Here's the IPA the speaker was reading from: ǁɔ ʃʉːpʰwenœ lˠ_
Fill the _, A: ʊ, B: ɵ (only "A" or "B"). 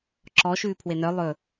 B